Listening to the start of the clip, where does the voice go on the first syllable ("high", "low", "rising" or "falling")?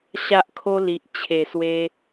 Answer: high